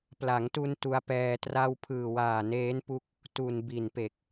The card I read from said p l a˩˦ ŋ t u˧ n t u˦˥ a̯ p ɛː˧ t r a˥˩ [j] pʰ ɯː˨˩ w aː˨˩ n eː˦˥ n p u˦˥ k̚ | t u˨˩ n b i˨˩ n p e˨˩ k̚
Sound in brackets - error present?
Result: yes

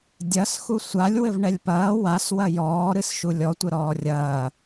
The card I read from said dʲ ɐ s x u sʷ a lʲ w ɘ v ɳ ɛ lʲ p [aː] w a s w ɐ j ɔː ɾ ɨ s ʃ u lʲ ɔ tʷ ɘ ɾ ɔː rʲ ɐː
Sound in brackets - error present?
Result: yes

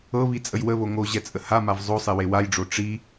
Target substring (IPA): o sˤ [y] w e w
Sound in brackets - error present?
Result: yes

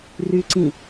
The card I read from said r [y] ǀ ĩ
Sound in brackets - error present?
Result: no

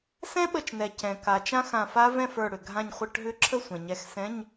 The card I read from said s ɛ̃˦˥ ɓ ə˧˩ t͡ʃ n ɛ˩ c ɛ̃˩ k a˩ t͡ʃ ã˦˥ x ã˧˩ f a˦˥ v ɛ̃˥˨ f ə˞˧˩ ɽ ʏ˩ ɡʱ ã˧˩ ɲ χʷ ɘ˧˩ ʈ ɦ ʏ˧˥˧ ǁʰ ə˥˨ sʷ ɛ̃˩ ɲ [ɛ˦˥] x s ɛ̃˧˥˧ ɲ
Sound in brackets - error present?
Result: yes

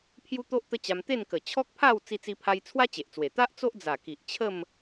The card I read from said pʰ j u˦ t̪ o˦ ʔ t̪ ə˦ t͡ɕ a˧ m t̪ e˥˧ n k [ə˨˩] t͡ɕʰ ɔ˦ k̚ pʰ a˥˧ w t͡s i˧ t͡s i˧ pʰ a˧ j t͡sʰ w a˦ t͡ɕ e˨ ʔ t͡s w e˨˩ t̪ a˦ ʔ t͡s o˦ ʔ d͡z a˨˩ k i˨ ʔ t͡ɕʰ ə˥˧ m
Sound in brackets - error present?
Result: no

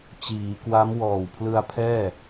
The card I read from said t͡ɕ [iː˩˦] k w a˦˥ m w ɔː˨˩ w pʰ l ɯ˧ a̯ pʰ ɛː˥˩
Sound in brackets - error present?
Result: no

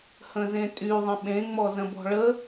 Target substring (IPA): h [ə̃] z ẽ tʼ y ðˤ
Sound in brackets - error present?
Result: no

